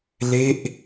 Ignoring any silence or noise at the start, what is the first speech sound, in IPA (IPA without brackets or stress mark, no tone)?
l